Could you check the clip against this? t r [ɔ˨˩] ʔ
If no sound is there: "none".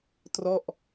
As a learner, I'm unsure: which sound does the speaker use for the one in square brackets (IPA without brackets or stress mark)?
ɔ˥˩